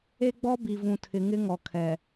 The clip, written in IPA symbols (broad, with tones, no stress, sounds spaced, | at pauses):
e˦ ɡ͡b ɔ˦ b i˨ v ũ˨ tʰ ɪ˨˦ ŋ ɪ˦ ŋ ɔ˨ kʰ ɛ˨